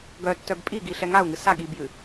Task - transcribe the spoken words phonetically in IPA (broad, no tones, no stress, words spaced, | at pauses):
ɡœtːœb pʼiɡiɬɛ ŋau̯ŋɨ sa ɠibjɨ